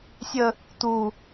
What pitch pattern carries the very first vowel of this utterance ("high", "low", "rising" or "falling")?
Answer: high